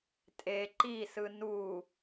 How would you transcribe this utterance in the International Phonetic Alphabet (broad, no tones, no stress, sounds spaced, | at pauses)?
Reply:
tʼ e ǃ i s ɯ n u